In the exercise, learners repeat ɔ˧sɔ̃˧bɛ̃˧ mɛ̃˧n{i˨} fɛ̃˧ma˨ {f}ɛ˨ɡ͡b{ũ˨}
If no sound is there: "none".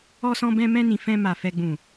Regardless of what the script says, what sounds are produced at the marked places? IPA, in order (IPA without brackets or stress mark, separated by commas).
ĩ˨, f, ũ˨